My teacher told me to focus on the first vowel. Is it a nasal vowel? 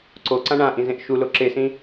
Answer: no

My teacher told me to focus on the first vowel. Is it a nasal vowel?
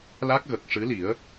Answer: no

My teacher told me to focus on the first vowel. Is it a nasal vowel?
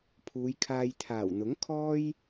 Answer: no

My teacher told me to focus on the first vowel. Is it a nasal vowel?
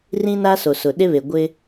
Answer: yes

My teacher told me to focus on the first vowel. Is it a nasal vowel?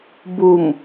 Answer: no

